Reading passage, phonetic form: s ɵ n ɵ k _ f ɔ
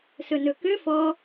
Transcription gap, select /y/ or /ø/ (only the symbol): ø